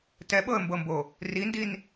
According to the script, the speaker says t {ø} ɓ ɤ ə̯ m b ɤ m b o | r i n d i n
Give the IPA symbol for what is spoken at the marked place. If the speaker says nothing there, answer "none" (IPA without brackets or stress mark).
ɛ